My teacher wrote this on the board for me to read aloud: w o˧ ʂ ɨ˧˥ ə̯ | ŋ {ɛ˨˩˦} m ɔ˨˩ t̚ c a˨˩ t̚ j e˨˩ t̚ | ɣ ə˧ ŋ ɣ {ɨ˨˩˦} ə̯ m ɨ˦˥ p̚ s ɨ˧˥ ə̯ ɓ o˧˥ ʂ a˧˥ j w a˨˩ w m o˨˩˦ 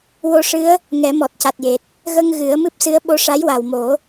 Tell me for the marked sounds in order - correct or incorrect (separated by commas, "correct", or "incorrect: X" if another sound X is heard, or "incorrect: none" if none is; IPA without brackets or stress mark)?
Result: correct, correct